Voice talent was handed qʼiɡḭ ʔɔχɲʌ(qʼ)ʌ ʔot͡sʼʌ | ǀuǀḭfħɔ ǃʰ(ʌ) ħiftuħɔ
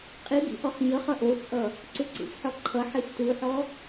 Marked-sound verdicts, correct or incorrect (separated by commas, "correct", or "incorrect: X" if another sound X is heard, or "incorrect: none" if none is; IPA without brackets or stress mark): incorrect: χ, correct